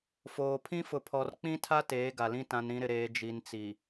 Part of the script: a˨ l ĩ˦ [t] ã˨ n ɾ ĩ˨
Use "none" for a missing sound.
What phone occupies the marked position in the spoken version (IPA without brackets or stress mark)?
t